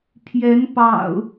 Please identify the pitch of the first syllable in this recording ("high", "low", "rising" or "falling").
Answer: rising